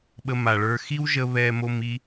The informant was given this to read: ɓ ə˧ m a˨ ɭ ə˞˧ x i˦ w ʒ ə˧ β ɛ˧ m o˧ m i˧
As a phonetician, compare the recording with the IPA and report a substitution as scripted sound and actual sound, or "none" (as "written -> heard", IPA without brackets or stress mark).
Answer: none